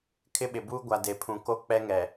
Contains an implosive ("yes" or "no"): yes